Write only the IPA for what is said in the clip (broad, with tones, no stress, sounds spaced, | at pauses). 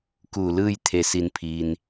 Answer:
k uː˧˩ l ɯː˥˨ j t̪ʰ e˧˩ s i˩˧ n pʰ iː˩ n